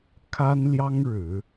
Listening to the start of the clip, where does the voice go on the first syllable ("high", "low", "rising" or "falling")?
high